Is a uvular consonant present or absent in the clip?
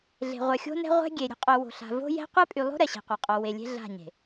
present